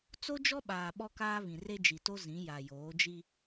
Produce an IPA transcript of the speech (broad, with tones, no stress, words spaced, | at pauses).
t͡so˦d͡ʒɔ˦ɓaː˨ ɓɔ˦kaː˦βĩ˨re˦ d͡ʒi˨to˦ zĩ˨˦ ja˨joː˨˦d͡ʒi˦